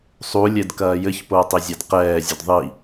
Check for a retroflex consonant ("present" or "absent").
absent